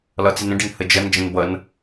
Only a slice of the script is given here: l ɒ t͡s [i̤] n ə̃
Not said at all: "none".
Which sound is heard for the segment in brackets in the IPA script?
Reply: i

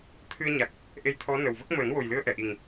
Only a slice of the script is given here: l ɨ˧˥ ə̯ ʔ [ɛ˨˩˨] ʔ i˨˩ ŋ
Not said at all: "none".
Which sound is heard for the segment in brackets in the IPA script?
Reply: ɛ˨˩˨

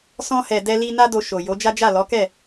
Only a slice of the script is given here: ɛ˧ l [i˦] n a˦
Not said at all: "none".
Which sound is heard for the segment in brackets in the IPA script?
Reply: i˧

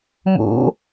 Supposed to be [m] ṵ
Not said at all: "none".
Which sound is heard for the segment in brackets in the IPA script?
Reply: m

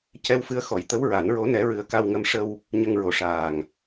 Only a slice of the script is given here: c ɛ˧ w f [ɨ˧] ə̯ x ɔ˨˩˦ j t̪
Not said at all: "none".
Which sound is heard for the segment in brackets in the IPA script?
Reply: ɨ˧˥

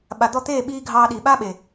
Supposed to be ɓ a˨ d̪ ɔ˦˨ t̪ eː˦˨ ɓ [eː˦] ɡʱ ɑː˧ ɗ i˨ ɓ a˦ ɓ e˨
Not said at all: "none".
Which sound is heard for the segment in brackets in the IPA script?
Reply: iː˦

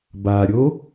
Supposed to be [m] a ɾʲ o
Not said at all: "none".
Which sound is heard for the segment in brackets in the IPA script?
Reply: b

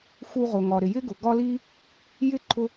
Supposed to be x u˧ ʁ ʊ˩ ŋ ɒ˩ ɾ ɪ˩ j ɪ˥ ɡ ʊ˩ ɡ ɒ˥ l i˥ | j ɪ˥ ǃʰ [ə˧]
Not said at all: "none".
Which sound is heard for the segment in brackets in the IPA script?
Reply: ʊ˧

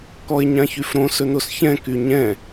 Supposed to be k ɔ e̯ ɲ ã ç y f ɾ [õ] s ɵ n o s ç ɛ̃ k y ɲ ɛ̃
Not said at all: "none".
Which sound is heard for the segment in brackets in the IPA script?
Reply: õ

